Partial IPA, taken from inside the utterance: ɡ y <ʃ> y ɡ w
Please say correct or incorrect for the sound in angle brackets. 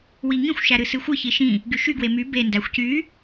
correct